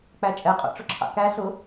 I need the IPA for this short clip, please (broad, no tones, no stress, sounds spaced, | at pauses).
k͡p æ t͡ʃʼ ɛ qʼ ɔ̰ ʈ͡ʂ ʊ ǁʰ ɑ̰ k æ ɬ ʊ